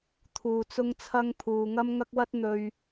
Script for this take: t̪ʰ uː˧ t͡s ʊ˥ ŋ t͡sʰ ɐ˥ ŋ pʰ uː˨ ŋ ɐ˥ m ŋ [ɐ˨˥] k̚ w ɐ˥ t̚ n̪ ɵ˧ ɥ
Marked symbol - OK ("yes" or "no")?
no